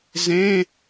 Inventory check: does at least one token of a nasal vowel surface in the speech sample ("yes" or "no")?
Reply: yes